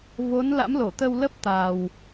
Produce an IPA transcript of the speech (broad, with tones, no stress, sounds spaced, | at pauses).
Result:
v o˨˦ n l a̰˧˥ m l o˧˩ t̪ ə˧ w l ə˦˥ p̚ t̪ a˨˩ w